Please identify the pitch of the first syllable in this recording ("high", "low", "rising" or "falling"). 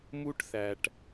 high